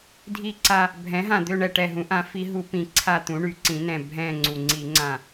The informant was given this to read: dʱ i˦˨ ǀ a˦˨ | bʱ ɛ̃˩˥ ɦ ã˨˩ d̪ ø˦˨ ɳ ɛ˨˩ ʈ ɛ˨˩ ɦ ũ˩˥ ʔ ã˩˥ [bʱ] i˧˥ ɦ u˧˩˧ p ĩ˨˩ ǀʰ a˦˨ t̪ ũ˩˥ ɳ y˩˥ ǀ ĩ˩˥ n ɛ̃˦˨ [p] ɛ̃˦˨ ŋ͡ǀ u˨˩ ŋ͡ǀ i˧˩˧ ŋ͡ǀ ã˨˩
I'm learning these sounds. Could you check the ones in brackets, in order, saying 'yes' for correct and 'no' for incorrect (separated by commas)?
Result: no, no